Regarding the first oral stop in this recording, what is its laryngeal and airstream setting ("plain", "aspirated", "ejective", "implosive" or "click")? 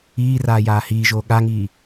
implosive